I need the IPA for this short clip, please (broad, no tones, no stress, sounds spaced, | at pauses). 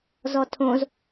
z ɔ tʰ õ z